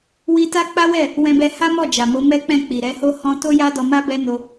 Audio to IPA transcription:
w i˧ t a˦ k͡p a˦ w ɛ˦˨ | w ɛ̃˧ b ɛ˧ h a˦ m ɔ˦˨ d͡ʒ a˨ m o˨˦ m ɛ˦ k͡p ɛ̃˦˨ k͡p i˨ ɾ ɛ˨˦ h o˦ h ɔ̃˦ t o˦ j a˦ d ɔ˧ m a˦ b ɛ˦ n o˧

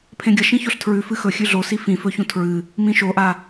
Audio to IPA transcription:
pʰ ẽ ɡʲ ɐ ʃ ĩ ç o ɬ tʰ ɹ ʉ f ɨ x ɵ xʲ ʉ ɮ o s i f ĩ f ɵ ç ũ tʰ ɹ ɨ | m ĩ ʃ o ʔ a

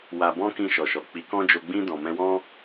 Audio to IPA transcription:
w a˧ b ɔ̃˦ k ĩ˧ ʃ ɔ˨ ʃ ɔ˨ k͡p i˨˦ k ɔ̃˦ d͡ʒ o˧ ɡ͡b ĩ˧ d ɔ̃˨ m ɛ̃˧ w ɔ̃˦

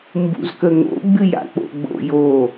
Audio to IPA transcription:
m b ṵ z k ə ŋ o̰ ɡ͡b ɨ j a̰ k͡p o̰ ɡ͡b o̰ j o

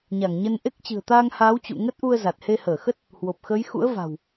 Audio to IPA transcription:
ɲ a˧˩ ŋ ɲ ə˧ n ʔ e˦˥ k̚ t͡ɕ ɨ̤˨˩ ə̯ t̪ aː˧ ŋ h aː˨˦ w t͡ɕ ṵ˧˨ ŋ ə˦˥ t̚ ʔ u˧ ə̯ z a˨˩ t̚ h e˧ h əː˧˩ x ə˦˥ t̚ | h w o˨˩ p̚ x əː˨˦ j x ṵ˧˥ ə̯ v a̤˨˩ w

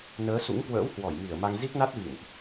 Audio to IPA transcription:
n əː˨˦ s ṵ˧˥ ŋ k w ə̰ː˧˥ w h w ɔ˧˩ j m i˧˩ ə̯ m a˧ ŋ z i˦˥ k̚ n a˦˥ t̚ v ḭ˧˨ n ʔ

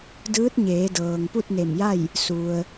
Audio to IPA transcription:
d ɯː˧˥ t̚ ɲ eː˩˧ d ɤː˩ ŋ p u˥˨ t̚ n e˧˩ m j a˥˨ j | s u˧ ə̯

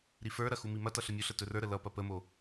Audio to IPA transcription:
ɾ i f ə˞ ɾ ɐ x u m i m ɐ t ʌ ɬ ə mʲ u ɬ ə t ɵ r ə˞ ɾ ə l ʌ p ɐ p ə m o

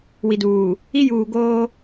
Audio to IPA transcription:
w i˨ d uː˨ | i˦ j uː˨ ɡ oː˦

